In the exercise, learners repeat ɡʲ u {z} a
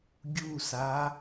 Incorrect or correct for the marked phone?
incorrect: s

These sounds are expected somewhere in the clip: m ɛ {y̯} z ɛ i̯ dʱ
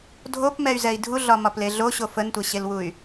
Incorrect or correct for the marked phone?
correct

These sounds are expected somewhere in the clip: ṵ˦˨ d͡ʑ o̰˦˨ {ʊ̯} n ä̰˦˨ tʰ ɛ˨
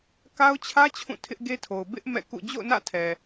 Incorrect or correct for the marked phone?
correct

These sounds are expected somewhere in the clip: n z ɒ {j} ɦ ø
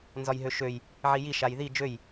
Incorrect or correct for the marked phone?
correct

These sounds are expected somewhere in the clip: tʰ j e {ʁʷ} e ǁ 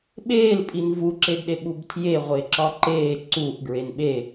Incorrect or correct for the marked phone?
correct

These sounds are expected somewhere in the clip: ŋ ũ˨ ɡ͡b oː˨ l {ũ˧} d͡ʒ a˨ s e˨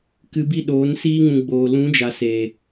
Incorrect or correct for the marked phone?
incorrect: ũ˨˦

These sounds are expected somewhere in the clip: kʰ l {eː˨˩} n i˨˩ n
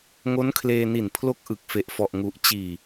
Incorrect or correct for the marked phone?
incorrect: eː˧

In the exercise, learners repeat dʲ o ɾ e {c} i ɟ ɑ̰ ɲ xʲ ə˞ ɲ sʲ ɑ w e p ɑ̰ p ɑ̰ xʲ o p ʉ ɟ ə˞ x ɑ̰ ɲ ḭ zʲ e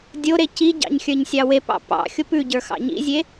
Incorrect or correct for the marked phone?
correct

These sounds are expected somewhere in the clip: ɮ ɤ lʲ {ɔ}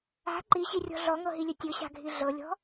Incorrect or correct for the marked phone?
incorrect: ɔ̤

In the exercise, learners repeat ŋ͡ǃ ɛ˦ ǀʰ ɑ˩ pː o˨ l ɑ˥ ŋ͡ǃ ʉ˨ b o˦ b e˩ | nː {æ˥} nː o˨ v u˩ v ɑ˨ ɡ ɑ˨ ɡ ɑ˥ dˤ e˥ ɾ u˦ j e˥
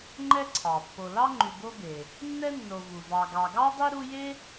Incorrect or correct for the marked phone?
incorrect: ɛ˥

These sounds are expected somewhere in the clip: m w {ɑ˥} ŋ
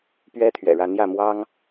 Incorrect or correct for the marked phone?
correct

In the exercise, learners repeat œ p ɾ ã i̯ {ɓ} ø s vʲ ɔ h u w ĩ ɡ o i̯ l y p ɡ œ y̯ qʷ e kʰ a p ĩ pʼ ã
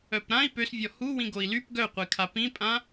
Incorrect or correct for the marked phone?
incorrect: p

